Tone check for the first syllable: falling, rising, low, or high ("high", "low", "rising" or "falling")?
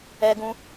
high